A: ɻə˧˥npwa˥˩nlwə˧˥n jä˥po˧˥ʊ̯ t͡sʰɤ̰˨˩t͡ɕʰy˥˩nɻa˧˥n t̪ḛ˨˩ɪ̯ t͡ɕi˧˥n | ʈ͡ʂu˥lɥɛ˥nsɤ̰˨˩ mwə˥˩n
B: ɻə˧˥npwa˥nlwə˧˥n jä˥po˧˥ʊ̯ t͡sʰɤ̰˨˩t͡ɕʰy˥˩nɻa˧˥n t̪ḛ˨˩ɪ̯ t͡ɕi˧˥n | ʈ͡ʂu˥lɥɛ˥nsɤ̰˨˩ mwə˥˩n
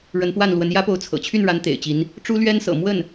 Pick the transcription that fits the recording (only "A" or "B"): A